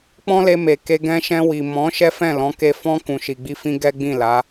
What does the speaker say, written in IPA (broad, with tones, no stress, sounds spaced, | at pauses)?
k͡p ɔ̃˦ l e˧ m e˨ k e˧ ɡ ɛ̃˧ ʃ ɛ̃˧ w i˨ m ɔ̃˨˦ ʃ ɛ˦ f ɛ̃˦˨ l ɔ̃˨˦ k e˧ f ɔ̃˧ k ũ˨ ʃ i˨ ɡ͡b i˧ f ĩ˧ ɡ ɛ˦ ɡ͡b ĩ˦˨ l a˨˦